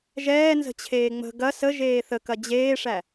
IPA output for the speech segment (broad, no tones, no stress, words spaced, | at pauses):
ʒɛːnzə̤t͡ɕʰeː ŋ͡mə̤ ɡɐ səʒeː θəkɐ d͡ʑeːʂæ